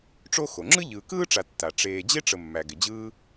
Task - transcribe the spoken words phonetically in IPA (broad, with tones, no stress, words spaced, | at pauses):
ʈ͡ʂo˥ xo˩ŋ͡ǁɯ˥ʎɯː˨ kɯː˥ʈ͡ʂa˨tːa˩ ʈ͡ʂeː˨ d͡ʑe˥ʈ͡ʂə˨ mːæ˩ɡɪ˩d͡ʑɯː˦